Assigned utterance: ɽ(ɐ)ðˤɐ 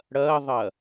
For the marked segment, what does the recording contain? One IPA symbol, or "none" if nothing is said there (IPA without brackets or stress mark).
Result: ɐ